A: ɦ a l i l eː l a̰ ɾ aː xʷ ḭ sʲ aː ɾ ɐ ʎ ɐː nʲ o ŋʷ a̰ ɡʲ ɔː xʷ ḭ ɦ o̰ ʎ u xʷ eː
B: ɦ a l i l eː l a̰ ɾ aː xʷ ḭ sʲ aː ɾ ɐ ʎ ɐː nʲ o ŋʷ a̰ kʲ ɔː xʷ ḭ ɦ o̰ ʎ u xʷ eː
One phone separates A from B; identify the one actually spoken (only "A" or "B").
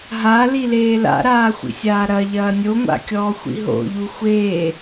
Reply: B